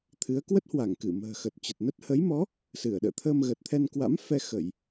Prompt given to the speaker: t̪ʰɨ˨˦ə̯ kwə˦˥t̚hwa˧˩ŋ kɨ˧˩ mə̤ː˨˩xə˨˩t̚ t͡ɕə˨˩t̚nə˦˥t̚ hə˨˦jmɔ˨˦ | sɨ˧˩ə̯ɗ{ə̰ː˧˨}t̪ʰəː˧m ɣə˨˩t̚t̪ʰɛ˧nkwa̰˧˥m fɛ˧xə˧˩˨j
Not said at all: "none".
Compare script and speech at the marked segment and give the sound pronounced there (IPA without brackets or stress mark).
ə̰ː˧˨